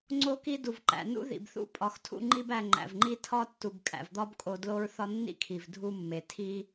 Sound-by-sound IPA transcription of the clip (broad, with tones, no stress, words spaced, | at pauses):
ŋ͡ǀo˦ki˦ du˩vǃæ̰˩ nṵ˥ðḭ˩bθṵ˥ pʼɒ˨xtʰṵ˦ŋ͡ǃi˥b æ˨ŋ͡ǃæ̰˩vŋ͡ǃi˦ tʰɒ˥tːu˨b kʼæ̰˩vd̪ɒ˥bkʼo˨ dlo˥ɹ θɒ˦nːḭ˥kʰi˩v dʱu˦mːe˩ tʰi˦